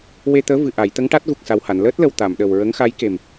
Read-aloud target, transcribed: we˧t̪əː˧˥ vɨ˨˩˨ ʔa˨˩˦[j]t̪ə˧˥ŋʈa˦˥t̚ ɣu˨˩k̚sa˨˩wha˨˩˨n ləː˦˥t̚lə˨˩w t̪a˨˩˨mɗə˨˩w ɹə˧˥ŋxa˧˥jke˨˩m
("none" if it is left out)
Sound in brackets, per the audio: j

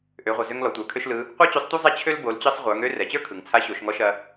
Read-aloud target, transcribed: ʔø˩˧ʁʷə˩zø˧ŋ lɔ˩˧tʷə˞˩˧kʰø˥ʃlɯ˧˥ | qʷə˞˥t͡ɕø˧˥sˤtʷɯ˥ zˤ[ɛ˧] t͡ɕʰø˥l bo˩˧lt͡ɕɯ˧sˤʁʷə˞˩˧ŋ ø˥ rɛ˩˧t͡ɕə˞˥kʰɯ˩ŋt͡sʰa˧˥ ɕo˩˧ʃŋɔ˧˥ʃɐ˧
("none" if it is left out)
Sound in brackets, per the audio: ɛ˥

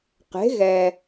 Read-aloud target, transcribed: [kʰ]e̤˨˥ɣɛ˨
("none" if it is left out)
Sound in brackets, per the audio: q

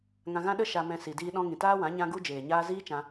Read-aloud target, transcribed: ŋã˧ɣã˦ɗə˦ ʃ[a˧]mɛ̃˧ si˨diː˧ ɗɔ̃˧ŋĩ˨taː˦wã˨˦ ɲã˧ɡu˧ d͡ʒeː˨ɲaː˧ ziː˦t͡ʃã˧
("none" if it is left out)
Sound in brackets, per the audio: a˧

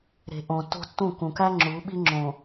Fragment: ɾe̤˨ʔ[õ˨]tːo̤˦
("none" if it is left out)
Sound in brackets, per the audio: õ˨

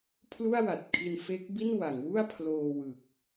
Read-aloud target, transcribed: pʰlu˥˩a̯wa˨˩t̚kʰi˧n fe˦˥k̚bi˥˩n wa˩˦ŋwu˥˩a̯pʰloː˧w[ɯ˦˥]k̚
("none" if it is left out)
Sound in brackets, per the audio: ɯ˨˩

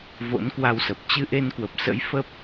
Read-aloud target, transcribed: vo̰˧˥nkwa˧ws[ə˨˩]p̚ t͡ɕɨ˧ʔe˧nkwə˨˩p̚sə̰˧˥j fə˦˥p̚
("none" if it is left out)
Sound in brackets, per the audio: ə˨˩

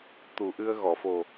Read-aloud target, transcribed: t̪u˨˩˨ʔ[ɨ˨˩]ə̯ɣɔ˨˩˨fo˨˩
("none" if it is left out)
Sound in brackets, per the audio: ɨ˧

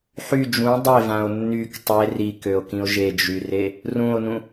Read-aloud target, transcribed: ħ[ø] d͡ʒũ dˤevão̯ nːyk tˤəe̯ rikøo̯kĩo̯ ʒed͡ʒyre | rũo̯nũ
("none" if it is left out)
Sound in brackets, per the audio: y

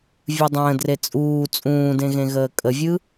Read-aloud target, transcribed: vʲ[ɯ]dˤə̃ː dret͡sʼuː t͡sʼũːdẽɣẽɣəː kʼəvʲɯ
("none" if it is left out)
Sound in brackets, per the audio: ɯ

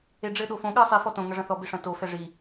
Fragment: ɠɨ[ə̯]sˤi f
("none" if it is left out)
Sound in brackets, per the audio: ə̯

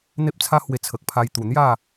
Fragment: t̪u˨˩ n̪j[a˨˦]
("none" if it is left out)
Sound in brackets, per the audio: a˥˧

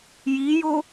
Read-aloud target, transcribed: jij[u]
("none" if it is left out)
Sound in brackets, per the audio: o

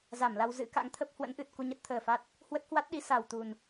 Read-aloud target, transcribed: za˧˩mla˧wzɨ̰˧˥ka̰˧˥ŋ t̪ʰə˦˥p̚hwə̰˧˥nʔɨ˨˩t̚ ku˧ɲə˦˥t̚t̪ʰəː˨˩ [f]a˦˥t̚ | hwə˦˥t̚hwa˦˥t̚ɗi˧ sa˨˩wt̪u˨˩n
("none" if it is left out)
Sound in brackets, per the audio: f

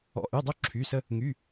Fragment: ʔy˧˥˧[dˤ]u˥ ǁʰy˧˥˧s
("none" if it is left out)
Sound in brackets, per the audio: dˤ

